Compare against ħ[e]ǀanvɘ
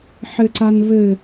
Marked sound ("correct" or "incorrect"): incorrect